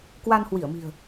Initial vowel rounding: unrounded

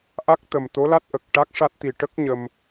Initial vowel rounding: unrounded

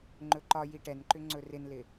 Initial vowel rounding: rounded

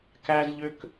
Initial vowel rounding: unrounded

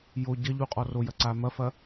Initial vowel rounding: rounded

